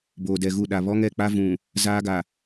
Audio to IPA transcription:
b oː˨ d ɛ˨ ɣ u˦˨ ɗ a˨ β ɔ˦ ŋ ɛ˨ k͡p a˦ v ũ˨ | z aː˦ ɡ a˨

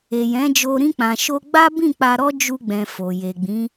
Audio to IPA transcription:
e˨ j ɛ̃˨˦ d͡ʒ o˧ ɾ ĩ˧ k͡p ã˨ ʃ o˧ ɡ͡b a˦ b ĩ˦˨ k͡p a˧ ɾ ɔ˦ d͡ʒ u˧ ɡ͡b ɛ̃˨ f o˨ j e˨ ɡ͡b ĩ˨˦

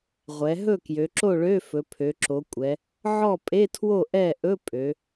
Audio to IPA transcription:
ʁʷ ɛ˩˧ ɦ ɵ˥˨ k j ø˩˧ ǁ o˥˨ ɭ ø˧˥˧ f ɵ˩˧ pʰ ø˩˧ ǁ o˩˧ kʷʼ ɛ˩˧ | ʕ ɔ˥˨ pʼ e˧˥˧ tʰ w o˥˨ ʔ ɛ˥˨ ʔ ɵ˧˥˧ pʼ ø˩˧

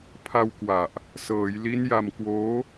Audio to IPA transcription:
pʰ a˧ w k w a˨˩ ʔ | s ɤː˩˦ j l i˦˥ n j a˧ m k w oː˦˥

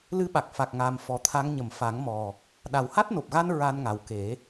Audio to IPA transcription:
l ɨ˧˥ ɓ a˨˩ k̚ f a˨˩ k̚ ŋ aː˨˩ m f ɔ˨˩˦ t̪ʰ a˧˥ ŋ ɲ ə˨˩˨ m f a˨˩˦ ŋ m ɔ˨˩ | ɗ a˨˩ w h a˦˥ t̚ n o˨˩ p̚ ɣ a˧ n ɹ a˧ n ŋ a˨˩ w k e˨˩˦

